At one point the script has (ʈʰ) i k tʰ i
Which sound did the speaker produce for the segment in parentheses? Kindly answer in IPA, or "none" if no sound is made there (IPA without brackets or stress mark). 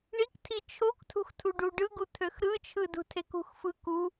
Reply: ɳ